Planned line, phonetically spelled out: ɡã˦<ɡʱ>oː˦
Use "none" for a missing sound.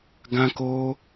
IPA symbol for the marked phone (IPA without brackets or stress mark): k